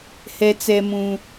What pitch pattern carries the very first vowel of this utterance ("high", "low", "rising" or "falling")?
high